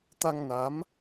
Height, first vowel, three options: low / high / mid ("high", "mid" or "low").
low